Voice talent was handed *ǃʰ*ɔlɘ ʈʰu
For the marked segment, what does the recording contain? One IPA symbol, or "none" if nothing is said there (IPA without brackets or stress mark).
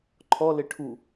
ǃʰ